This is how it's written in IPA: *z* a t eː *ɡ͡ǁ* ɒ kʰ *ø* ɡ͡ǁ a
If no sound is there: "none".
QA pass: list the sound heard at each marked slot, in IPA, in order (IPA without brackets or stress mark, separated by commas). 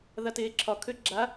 ð, ǁʰ, ø